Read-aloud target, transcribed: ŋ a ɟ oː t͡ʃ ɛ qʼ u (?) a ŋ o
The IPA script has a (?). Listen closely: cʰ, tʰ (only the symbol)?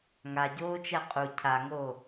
cʰ